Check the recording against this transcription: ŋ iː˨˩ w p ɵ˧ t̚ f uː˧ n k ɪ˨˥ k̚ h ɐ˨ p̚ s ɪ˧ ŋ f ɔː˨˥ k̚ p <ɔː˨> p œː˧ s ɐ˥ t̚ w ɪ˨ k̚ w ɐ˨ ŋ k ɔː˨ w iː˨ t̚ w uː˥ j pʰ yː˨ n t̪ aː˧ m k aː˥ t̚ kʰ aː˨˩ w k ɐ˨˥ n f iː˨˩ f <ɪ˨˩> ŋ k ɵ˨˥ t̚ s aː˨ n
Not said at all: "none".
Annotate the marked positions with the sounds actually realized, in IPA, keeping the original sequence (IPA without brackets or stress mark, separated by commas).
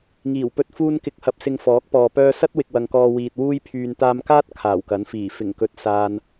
ɔː˨, ɪ˨˩